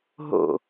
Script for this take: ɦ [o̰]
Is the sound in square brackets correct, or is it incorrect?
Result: correct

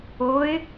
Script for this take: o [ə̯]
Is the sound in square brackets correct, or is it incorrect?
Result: incorrect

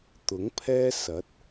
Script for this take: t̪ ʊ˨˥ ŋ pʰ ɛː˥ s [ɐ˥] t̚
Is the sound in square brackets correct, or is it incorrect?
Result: incorrect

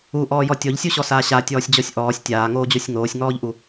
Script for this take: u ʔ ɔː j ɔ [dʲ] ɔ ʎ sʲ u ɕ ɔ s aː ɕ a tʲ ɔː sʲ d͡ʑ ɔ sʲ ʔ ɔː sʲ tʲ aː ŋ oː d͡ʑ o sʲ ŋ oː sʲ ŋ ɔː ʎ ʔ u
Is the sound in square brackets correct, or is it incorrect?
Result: incorrect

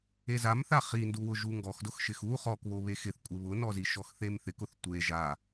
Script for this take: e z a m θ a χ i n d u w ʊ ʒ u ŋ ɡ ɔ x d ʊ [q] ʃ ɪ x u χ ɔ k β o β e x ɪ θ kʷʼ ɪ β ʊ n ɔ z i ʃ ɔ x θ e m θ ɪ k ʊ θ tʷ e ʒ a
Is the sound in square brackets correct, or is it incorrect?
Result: incorrect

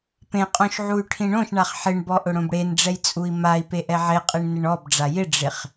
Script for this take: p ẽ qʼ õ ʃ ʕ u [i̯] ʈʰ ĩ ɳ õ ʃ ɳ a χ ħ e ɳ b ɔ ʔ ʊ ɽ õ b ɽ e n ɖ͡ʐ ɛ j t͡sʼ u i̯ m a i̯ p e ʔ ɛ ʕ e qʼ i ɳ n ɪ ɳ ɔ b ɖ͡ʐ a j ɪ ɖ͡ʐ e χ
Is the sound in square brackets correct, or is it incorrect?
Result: incorrect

